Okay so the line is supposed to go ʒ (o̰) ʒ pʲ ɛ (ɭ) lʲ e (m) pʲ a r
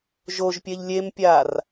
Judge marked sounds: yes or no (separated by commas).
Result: no, no, yes